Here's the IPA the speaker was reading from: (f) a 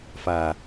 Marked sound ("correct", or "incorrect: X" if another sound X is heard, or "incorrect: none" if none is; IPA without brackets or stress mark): correct